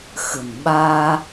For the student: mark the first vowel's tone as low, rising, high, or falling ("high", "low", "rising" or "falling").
low